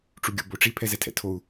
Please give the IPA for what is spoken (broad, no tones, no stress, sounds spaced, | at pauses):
ʈ͡ʂ u ɡʲ o̰ b o ʈ͡ʂ i pʰ ɛ z ɛ tʰ ɛ̰ tʰ o u̯